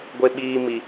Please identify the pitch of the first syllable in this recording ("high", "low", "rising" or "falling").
high